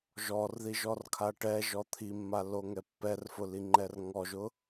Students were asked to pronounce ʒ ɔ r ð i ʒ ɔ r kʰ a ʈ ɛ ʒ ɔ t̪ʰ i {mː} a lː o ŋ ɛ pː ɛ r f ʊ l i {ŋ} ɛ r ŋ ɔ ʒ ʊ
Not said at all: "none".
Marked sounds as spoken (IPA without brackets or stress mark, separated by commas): mː, ŋ͡ǃ